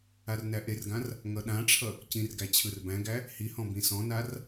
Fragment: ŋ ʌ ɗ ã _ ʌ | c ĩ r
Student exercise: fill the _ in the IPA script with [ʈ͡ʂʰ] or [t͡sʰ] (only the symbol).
ʈ͡ʂʰ